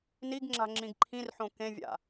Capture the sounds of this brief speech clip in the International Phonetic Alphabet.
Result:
n i ɡ ŋ͡ǁ a̤ ŋ͡ǁ ĩ ɡ ǃʰ ĩ r ħ õ k ẽ vʲ a̰

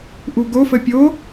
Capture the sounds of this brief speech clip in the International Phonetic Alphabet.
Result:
ʔ u ɡ o f ə pʲ o

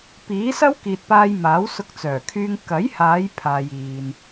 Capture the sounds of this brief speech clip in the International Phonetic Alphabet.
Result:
p iː˨˥ s ɐ˥ w k iː˨ t̚ p aː˧ j m aː˨˥ w s ʊ˧ k̚ t͡s œː˨˩ kʰ yː˧ ŋ k ɐ˨˥ j h aː˨˧ j pʰ aː˧ j iː˧ n

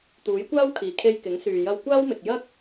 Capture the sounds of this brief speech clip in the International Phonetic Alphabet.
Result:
t̪ uː˨˥ j kʷ aː˥ w kʰ iː˨ kʰ e˧ j k ɪ˨˥ ŋ s yː˨ j ɐ˧ w kʷ aː˥ w m ɪ˨ k̚ j ɐ˥ k̚

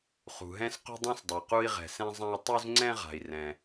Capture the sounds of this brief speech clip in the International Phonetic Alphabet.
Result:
χ ṳ˩ ɦ ɛ̃˧ s q ṳ˧ dˤ ũ˧ s dˤ œ˩ q u˧ i̯ ʁ ɛ̤˩ s ɛ̃˧ zˤ ã˧ i̯ tˤ u˧ z ŋ͡ǀ ɛ̃˧ ʁ a̤˩ i̯ r ɛ̃˩

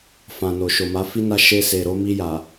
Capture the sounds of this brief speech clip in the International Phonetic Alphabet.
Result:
f ã˨ n o˨ ʃ o˨ m a˨˦ f i˦ n a˦ ʃ e˧ s e˨ ɾ o˨˦ m i˧ j a˨

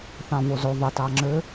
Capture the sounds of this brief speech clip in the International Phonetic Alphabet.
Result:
θ ɑ̃ v o z o ðˤ ɪ t ɑ ŋ͡ǁ ø

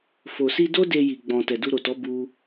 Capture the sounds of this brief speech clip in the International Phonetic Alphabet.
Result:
f o˨ s i˧ d o˦ d e˧ j i˧ ɡ͡b ɔ̃˧ t ɛ˨ d u˧ ɾ o˨ t ɔ˨˦ b u˦

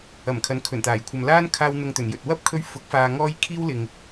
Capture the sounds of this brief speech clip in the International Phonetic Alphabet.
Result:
ɐ˨˩ m kʰ ɐ˨˥ n kʰ ɵ˨˩ n t̪ aː˨˩ j kʷʰ ɐ˨ m l aː˥ n kʰ aː˧ w n̪ ʊ˨ ŋ t̪ ɵ˨˩ n j ɵ˨ t̚ w ɐ˥ p̚ kʰ ɵ˧ ɥ f ʊ˨˥ k̚ f aː˧ ŋ ɔː˥ j kʰ iː˥ w l ɪ˨ ŋ

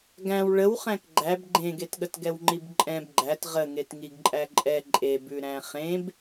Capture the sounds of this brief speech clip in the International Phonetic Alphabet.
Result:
ɡ æ̃ w ɭ ə w χ æ̃ k ɡ͡ǃ æ b ɡ͡ǃ ẽ ɡ e t ɠ ə t ɡ ɛ w ŋ͡ǃ i b ǃʼ ɛ̃ b ɡ͡ǃ æ t ʁ ə ŋ e t ŋ i ɡ ǃʼ æ ǃʼ ɛ ǃʼ e b ʉ ɾ æ̃ χ ẽ b

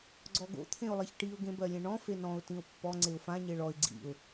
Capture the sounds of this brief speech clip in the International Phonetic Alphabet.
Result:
ɡ͡ǀ ɔ ɡ o̰ t̪ʰ ẽ ʊ̯ lˠ e ç ʈ i ʊ̯ ɡ ẽ b ɜ lʲ ẽ ɳ ɔ̃ f e n ɔ̃ ʊ̯ t ĩ ʊ̯ pː ɔ ŋ͡ǀ e ʊ̯ f ã ɲ e ɭ ɔ ɪ̯ ɡ͡ǀ ḭ ʊ̯

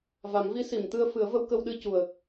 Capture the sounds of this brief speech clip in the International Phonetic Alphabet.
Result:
v a˨˩˦ m v i˧˥ s i˨˩˨ m t̪ ɨ˧ ə̯ f ɨ˨˩˦ ə̯ v ə˧ w k ə˧ w ɗ ɨ˧ c u˨˩ ə̯

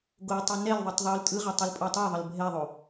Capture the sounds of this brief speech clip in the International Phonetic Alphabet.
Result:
ɡ o tˤ i n ɛ l ðˤ i tˤ ðˤ u l tʼ ɯ ʁ a tˤ u l pʼ ɔ tˤ ɛ ðˤ ɤ l bʱ ɛ ðˤ o

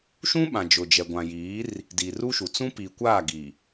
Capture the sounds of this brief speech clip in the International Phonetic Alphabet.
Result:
ʃ ũ˦ ɓ ã˨ d͡ʒ ʊ˨ d͡ʒ ɛ˨ ɡʷ ã˨ j iː˨˦ r | d i˨ r u˦ ʃ u˨ t͡s ũ˦ p i˨ kʷ aː˦˨ ɡ i˨

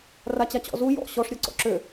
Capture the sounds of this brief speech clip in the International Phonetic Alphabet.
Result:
r a t͡ɕ a t͡ɕ ɔ̰ z u j ɔ̰ ɕ ɔ ʂ ɾʲ ɔ ǀ ɔ̰ ǁ ø

